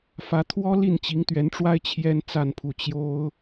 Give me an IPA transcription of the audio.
f ä˧˥ t̪ʰ w ɔ˥ l i˥˩ n t͡ɕ i˧˥ ŋ t̪ ɥ ɛ˧˥ n ʈ͡ʂ w a˥ ɪ̯ t͡ɕʰ j ɛ˥ n t͡s a˥˧ n pʰ u˥˩ t͡ɕ j o˥ ʊ̯

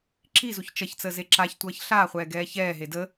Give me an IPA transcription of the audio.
ǁ i z u ç t͡ʃ ʌ ç t͡s əː z e ǁ a ç tʷ ʌː ç ɬ aː χʷ ɛː ɡ ɛː ç ɛː ɦ e d ə

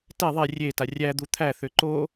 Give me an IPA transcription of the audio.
t ɛ ðˤ e rʲ e t a rʲ æ d̪ u t̪ʰ æ θ ʏ ǃ o

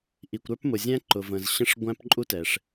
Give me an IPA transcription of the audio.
ʔ i˩ kʷ ɾ ə˞˥ p m ʊ˩ zʲ æ̃˥ ǃ ʊ˩ v ə̃˩ z ɕ ə̃˥ ʂ ɡʷ æ̃˥ p ǃʼ u˥ t ɛ˩ ʂ

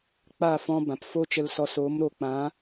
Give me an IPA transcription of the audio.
k͡p a˦˨ f ɔ̃˧ b ã˨ p f o˦ t͡ʃ ə˧ l s ɔ˨˦ s oː˨˦ m ɾ o˨ k͡p ã˨˦

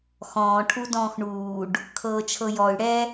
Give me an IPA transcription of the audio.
x ɔ̃ː ʈʰ u d ɔ̃ː x ɳ uː ɖ | kʰ ɤː t͡ʃʰ ɤ j ɔ y̯ ɽ ɛ

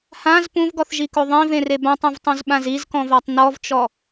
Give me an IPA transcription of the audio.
h ã z p ũ v ɡ ɔ θ ʒ i k o ðˤ ĩ v ẽ r e b ã tˤ ũ v tˤ ũ z ɓ ã z i z k ɔ̃ v a tˤ n ɔ v t͡ʃ ɔ

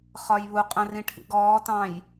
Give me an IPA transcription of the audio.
χ ɒ j β u qʼ ə̃ r ĩ ʈʰ ḭ ɡ ɔː t ɑ̃ j

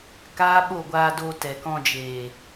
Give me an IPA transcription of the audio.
k aː˦ ɓ o˦˨ ɡʷ aː˧ d o˧ t ɛ˨ k ɔ̃˧ d͡ʒ eː˨

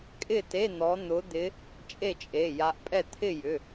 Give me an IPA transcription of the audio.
kʼ ɪ˥˨ t e˧˥˧ n̪ ɔ˨˦ n̪ ʊ˨˦ d̪ ɪ˨˦ | t͡ʃʼ e˥˨ t͡ʃʼ e˩˧˩ j a˨˦ ʔ pʼ ɛ˥˨ t̪ʰ ɪ˥˨ j ʏ˩˧˩

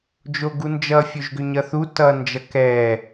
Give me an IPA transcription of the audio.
d͡ʒ o ɡ u n d͡ʒ ʌ fʲ o ʒ ɡ ʏ ɲ ʌ θ u t ʌ n d͡ʒ ʌ k ɛ

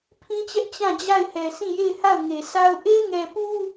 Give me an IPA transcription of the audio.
pʰ ĩ˦ t͡ɕ ɛ˦ ʔ t͡ɕ ã˦˨ d͡ʑ a˦˨ ɪ̯ h ɛ˨ sʰ ĩ˦˨ j e˦˨ ɪ̯ h a˦˨ ʊ̯ ŋ e˨ sʰ a˦ ʊ̯ ʔ e˦ ŋ ɛ˨ p u˦

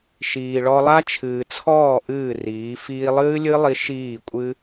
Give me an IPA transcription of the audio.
ʃ iː˨ ɭ ɔ˧ lˠ a˦ t͡ʃʰ ɨː˨ t͡sʰ ɔː˦˨ ʔ ɨː˦˨ r iː˨˦ f iː˧ lˠ ɨː˦ lʲ ɨ˦ lˠ i˧ ʃ iː˦˨ kʷʼ ɨ˦

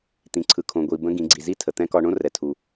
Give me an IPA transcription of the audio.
t̪ ĩ˩ ǀʰ ɯ˩ kʰ õ˩ ɡʷ i˩ b ə̃˧˥ ɡ ĩ˩˧ ɡ͡ǀ i˩ z i˥ tʰ ə˩ t̪ ɛ̃˧˥ k ɒ˧ ɳ õ˥ r ɛ˩ tʰ u˩

